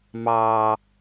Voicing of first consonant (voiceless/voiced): voiced